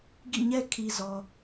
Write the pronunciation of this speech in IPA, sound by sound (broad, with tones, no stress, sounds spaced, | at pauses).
ɡ ḭ˦˨ ɲ ɛ˦ kʰ i˨ z ɔ˨